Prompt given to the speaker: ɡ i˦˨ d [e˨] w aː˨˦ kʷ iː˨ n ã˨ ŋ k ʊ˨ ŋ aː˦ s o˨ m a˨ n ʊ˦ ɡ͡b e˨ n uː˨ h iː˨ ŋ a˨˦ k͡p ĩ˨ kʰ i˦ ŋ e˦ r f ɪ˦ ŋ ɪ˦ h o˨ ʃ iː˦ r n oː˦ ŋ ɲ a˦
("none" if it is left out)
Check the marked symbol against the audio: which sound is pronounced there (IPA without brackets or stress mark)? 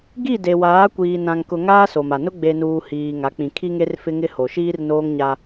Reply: e˨